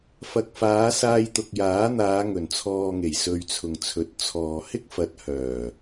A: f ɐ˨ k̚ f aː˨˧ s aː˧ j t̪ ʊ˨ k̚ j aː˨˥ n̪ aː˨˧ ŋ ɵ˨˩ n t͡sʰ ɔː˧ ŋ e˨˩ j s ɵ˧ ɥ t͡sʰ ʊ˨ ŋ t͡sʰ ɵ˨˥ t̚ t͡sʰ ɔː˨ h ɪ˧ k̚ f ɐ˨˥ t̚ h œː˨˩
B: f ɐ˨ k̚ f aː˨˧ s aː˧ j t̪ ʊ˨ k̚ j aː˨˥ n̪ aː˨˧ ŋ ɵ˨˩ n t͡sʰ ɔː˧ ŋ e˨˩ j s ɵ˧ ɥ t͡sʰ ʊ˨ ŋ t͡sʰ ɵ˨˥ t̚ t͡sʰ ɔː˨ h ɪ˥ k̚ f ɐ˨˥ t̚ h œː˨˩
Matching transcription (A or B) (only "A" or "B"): B